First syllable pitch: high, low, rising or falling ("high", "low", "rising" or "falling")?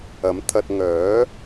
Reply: rising